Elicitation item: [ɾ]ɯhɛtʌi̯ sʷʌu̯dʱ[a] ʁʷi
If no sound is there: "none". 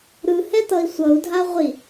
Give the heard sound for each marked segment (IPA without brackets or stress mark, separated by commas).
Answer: ɾ, a